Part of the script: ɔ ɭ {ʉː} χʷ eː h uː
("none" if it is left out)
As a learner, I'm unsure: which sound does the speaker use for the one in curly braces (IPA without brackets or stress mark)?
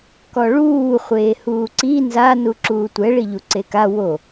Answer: uː